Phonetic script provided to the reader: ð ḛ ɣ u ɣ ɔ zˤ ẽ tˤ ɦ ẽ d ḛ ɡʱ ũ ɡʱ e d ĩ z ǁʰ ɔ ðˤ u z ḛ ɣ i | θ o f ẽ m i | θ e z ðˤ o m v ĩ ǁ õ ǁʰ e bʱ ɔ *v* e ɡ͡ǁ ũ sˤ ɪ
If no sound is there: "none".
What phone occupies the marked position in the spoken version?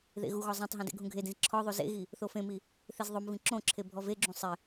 v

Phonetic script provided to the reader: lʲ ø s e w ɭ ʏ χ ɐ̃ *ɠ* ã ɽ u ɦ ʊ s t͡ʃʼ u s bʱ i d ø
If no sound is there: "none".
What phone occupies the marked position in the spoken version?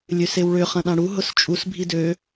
ɗ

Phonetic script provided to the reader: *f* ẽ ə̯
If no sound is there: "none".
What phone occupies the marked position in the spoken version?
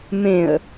m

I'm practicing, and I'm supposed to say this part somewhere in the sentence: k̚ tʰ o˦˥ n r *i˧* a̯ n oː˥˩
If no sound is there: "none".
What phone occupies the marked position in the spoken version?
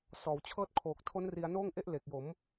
i˧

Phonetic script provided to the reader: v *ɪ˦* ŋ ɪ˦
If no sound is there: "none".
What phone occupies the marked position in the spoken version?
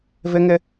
ɪ˦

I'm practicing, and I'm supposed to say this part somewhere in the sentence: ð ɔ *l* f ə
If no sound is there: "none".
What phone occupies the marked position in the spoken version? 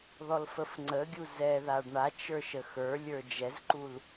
l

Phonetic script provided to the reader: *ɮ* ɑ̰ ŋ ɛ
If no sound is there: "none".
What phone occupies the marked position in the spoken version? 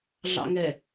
ɮ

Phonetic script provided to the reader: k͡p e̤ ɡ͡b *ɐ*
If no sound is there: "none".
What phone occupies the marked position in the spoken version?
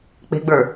ə˞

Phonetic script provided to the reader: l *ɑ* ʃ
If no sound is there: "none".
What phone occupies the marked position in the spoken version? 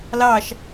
ɑ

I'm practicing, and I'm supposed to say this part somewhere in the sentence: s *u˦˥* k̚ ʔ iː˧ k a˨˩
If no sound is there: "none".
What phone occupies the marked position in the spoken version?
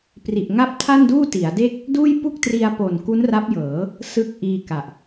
ɯ˦˥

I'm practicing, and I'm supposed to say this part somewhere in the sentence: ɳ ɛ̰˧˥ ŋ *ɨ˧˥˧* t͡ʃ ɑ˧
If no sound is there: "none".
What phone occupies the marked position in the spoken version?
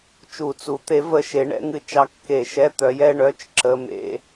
ɨ˧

